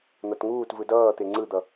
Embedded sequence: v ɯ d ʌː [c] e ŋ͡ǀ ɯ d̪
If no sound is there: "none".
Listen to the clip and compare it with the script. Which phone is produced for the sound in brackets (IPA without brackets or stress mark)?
t̪